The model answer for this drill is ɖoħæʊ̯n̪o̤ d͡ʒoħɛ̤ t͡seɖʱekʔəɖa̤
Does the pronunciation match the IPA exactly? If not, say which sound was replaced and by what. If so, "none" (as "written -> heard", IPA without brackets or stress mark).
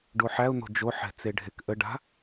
none